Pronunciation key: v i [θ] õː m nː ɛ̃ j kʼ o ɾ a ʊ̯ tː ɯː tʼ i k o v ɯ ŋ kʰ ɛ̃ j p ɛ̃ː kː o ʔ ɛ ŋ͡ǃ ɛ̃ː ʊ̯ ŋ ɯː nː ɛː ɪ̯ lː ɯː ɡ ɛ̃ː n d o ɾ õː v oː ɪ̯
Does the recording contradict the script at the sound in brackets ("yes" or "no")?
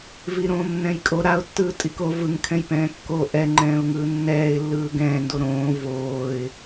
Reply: yes